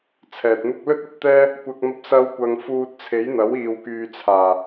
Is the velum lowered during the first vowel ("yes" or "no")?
no